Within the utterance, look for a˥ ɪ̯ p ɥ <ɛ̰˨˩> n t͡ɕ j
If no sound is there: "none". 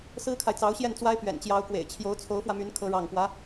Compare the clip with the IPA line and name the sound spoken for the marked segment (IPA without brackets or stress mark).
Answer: ɛ̰˨˩